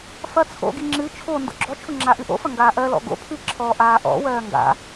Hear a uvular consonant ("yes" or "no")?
no